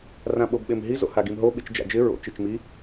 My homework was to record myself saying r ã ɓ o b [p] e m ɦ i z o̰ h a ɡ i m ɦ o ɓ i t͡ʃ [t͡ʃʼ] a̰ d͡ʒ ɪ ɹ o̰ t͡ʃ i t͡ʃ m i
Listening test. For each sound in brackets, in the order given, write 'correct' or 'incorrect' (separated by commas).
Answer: incorrect, incorrect